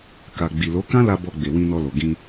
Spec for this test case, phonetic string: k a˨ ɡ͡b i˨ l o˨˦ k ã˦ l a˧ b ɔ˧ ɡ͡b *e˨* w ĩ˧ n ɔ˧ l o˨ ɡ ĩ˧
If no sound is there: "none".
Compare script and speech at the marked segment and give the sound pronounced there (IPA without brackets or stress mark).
e˨